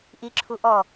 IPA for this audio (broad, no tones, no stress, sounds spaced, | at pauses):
ʔ i ǁʰ u ʔ ɔ